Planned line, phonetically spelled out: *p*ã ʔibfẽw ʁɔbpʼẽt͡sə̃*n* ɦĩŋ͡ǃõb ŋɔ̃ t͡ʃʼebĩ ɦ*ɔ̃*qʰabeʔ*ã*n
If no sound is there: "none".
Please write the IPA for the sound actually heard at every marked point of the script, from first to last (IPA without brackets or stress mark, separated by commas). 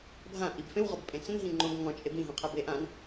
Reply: bʱ, n, õ, ã